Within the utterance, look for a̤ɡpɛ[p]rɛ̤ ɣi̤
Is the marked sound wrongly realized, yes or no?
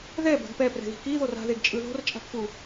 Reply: no